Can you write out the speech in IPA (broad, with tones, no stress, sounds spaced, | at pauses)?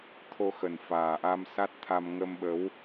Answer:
t̪ʰ o˧ x ə˨˩ n f aː˨˩ ʔ a˧ m s a˦˥ t̚ t̪ʰ a˧ m ŋ ə˧ m ɓ ə˨˦ w